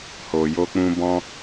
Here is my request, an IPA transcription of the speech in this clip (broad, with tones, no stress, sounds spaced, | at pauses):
h o˨ j o˧ k͡p ũ˧ b ɔ̃˧